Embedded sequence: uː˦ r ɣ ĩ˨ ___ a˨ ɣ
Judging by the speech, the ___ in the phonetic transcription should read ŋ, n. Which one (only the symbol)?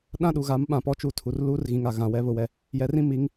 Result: ŋ